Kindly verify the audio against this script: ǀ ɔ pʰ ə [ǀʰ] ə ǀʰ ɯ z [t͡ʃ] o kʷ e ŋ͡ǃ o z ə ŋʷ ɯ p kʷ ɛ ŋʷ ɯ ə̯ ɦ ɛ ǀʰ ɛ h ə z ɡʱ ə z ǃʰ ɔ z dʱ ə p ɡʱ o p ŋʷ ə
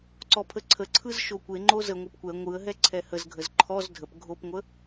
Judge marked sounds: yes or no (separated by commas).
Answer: yes, no